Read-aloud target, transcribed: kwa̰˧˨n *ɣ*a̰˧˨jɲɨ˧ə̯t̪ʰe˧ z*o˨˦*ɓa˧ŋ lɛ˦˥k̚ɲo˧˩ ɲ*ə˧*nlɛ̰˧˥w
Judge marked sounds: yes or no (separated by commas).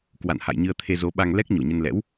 no, yes, yes